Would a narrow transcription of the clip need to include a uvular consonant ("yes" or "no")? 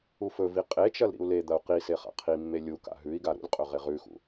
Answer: yes